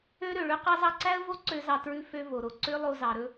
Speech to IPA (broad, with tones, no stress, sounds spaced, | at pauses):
ø˥ ɾ ø˩ ɭ ø˥ q ɑ˥ z ɑ˥ ǀ æ˥ ə̯ v o˥ ǀ ø˥ z ɑ˧ t ɹ ʉ˧ f ø˧ v o˩ ɾ o˩ ǀ ø˥ lˠ o˧ z ɑ˩ ɾ ɵ˥